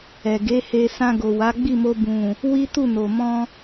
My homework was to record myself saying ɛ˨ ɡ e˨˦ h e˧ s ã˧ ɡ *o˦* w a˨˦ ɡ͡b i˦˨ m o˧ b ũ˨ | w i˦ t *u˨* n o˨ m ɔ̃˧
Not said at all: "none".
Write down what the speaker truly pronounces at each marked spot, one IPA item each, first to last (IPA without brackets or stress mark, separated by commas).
o˨, u˦˨